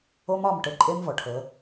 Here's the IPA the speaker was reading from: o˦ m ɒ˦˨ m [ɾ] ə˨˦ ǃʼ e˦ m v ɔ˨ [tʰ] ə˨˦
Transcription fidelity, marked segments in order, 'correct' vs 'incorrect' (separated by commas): incorrect, incorrect